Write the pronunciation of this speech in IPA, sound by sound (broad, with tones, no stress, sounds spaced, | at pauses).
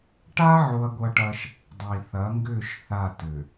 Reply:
ʈ a˦ ʕ o˦ ɐ̯ ɡʷ ɐ˦ ʈ ɐ˦ ʃ | dˤ i˨ θ ɐ˨˦ ŋ ɡ ʏ˦˨ ʃ θ a˦˨ t ʏ˨